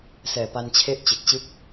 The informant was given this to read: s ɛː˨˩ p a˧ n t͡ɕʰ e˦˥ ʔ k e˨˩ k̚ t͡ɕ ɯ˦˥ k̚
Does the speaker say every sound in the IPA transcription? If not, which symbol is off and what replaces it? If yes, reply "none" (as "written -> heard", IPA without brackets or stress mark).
k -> t͡ɕ